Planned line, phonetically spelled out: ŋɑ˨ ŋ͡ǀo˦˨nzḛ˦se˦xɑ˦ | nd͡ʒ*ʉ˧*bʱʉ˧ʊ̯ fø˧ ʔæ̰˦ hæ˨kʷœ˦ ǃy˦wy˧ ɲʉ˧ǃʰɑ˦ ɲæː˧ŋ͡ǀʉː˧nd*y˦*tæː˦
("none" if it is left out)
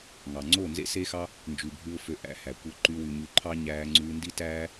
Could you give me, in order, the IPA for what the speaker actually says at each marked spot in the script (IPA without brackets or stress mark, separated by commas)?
ʉ˨, i˦